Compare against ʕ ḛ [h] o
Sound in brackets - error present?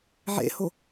no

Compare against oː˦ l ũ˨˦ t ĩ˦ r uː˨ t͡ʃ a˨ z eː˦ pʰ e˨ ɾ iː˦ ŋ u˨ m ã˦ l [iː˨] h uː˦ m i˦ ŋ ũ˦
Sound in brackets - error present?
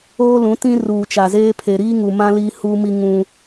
yes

